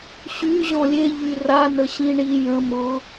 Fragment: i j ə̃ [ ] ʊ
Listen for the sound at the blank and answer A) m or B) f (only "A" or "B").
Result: A